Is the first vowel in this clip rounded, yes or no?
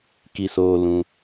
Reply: no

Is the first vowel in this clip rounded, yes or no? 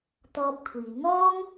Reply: yes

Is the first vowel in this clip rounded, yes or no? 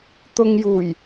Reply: yes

